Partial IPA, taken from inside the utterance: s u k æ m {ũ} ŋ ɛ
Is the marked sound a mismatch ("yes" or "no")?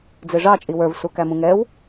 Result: no